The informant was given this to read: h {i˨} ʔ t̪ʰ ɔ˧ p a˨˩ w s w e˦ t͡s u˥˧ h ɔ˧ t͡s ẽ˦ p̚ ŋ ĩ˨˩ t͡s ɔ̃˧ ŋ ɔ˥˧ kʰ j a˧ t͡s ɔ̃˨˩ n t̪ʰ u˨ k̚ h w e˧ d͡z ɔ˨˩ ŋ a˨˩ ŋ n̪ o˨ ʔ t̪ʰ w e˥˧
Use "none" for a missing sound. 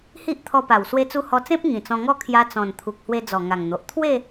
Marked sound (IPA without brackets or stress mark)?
i˦